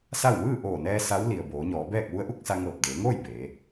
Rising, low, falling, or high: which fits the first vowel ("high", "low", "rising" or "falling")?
falling